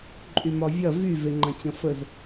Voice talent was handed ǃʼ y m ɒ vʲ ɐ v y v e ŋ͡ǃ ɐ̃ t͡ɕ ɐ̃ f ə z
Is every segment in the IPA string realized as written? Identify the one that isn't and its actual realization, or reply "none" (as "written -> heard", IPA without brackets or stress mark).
none